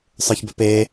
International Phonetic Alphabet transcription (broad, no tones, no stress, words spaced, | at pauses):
sˤə˞çbœpe